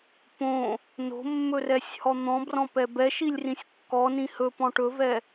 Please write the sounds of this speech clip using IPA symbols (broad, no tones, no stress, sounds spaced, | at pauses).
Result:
p õ | n o̤ mː ɵ r ɛ sʲ h ɔ n̪ ɔ̃ b r ɔ̃ p ɛ b ɛ ʃ i lʲ r ĩ sʲ kː ɔ n ĩ h ɵ p ɔ̃ ʈ ɵ v ɛ